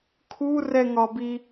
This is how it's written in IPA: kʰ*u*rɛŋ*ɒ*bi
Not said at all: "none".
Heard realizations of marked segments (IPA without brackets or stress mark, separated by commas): u, ɒ